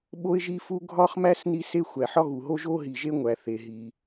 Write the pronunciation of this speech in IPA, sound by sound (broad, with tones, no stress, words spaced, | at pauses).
ɓo˦ɪ̯ʒi˦fu˦ ɡʱɒ˦χmæ˦s ni˦se˦ xʷæ˩ħɒ˦ɣu˩ɦo˦ ʒo˦ɦi˩ʒe˦ ŋʷæ˩ θe˩ɦi˩